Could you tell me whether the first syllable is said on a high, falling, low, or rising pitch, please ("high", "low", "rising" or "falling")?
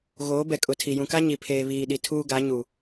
rising